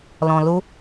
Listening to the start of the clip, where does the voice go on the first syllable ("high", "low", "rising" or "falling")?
low